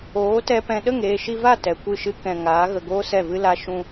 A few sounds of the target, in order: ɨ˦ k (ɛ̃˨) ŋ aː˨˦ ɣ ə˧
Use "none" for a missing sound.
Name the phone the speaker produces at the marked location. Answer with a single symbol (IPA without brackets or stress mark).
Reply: ɛ̃˧